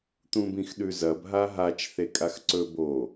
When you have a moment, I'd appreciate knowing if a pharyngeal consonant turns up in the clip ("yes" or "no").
no